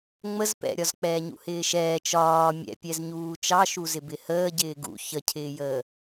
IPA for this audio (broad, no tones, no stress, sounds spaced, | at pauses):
ŋ͡m ə z p ɛ̰ ɾʲ ɒ z k͡p ɛː ɲ ṵ h ɪː ʃ ɛː t͡ʃ ɒː mʲ ɛ̰ pʲ ɛ z ɲ uː t͡ʃ ɑ ʃ u z ɪ b ɪ h əː ɟ ɪː ɡ ṵ ç ə cʰ ɪː j əː